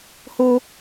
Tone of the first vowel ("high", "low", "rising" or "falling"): high